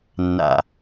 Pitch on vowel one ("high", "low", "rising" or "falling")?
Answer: low